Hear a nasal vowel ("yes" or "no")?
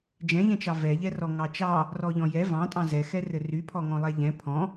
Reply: yes